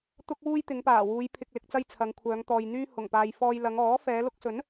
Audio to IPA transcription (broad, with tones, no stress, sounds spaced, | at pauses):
t̪ ʊ˥ k̚ w uː˥ j t̪ ɪ˨˧ ŋ p aː˨˩ w uː˨˧ j pʰ ɪ˨ k̚ l ɪ˨ k̚ t͡s ɐ˧ j t͡sʰ ɐ˨˧ ŋ kʷʰ œː˨˧ ŋ t̪ ɔː˨ j n̪ yː˥ h ʊ˨˩ ŋ p aː˨ j f ɔː˧ j l ɐ˨˧ ŋ ɔː˨˥ f ɛː˨˧ l ʊ˧ k̚ s ɵ˨˥ n